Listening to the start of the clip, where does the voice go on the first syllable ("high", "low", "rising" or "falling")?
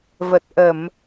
low